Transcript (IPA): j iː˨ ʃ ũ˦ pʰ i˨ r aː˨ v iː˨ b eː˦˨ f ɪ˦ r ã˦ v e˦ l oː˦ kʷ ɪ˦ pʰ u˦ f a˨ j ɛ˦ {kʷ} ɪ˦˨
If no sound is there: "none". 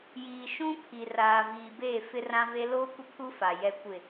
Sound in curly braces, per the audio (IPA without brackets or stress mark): kʷ